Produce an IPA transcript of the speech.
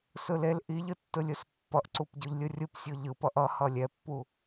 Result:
s ɯ l e l ʔ i ʎ ɯ tː ɯ lʲ ɯ s pː ʌ ʔ ǀ u p ɟ o ʎ lʲ ɯ rʲ ɯ p sʲ o ʎ ɯ p ʌ ʔ ʌ h ʌ lʲ ɛ pː u

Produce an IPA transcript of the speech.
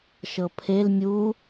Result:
ʃ ɤ pʰ e l mʲ u

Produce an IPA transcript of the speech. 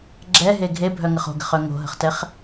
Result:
ɡ͡ǁ ɛ ɦ e ɡʱ e bʱ œ ŋ ə χ o̤ ɡ ə̤ χ œ ŋ o̤ ɦ ə̤ χ t ɛ χ

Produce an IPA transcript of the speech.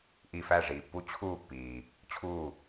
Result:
ʔ i˧˩ f æ˥˩ ʐ iː˩ pː u˧˥ t͡ɕʰ uː˥˩ pː iː˩ | t͡ɕʰ uː˥˩

